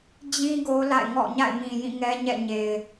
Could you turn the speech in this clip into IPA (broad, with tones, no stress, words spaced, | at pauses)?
d͡ʑĩ˦ ɡo˦la̰˦˨ɪ̯ŋɔ̰˦˨ ɲa̰˦˨ɪ̯mĩ˨jĩ˦˨ ŋɛ˦ɲɛ̰˦˨ɲe˨ɪ̯